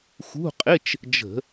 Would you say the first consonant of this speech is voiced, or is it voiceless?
voiceless